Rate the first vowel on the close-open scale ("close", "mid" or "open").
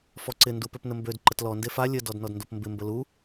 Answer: mid